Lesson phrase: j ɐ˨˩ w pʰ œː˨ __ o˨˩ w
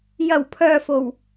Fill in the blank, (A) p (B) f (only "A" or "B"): B